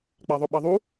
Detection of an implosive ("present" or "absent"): present